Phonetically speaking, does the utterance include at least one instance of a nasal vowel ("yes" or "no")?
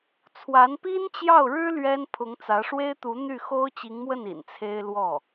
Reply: no